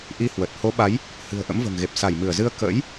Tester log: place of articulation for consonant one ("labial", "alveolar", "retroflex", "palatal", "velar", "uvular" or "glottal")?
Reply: glottal